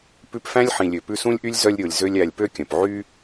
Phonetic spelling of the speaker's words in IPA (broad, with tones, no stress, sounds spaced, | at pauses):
p ʉ˦ p f æ̃˥ lʲ ħ ĩ˨ lʲ ø˨ p ʉ˦ s ũ˥ lʲ ʔ y˥ lʲ z œ˦ lʲ ɾʲ o˨ lʲ z ø˦ lʲ æ˨ lʲ p ø˥ kʲ œ̃˩ p ʕ y˥